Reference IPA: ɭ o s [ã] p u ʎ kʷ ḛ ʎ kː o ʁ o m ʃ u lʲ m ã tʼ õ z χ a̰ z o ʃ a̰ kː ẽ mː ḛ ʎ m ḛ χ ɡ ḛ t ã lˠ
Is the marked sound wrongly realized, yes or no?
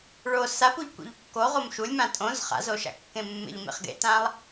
yes